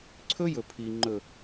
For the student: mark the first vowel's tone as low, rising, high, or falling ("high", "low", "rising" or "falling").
high